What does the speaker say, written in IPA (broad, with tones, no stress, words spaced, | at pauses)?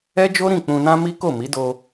ɛ˦d͡ʒo˦ɾĩ˦˨ k͡pũ˧nã˦mi˦ ko˦˨mi˨˦do˧